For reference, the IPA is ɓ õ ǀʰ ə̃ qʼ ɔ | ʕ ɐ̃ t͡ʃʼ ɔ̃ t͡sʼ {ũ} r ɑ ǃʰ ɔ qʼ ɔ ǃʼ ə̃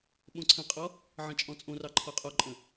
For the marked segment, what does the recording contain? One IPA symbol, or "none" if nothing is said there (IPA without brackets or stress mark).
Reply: õ